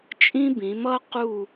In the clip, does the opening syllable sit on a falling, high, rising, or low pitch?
high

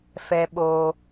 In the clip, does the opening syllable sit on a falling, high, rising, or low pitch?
high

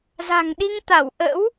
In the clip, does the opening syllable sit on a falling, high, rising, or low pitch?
low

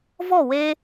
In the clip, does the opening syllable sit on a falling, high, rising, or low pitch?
falling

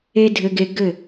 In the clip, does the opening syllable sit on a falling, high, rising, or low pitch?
high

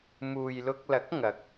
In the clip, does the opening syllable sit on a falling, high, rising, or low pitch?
low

